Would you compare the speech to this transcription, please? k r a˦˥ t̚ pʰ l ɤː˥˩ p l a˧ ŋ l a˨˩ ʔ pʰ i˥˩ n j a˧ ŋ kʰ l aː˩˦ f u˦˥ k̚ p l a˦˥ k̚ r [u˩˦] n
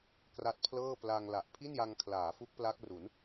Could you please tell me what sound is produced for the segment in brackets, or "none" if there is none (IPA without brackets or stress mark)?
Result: u˩˦